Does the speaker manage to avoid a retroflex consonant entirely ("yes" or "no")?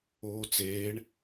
no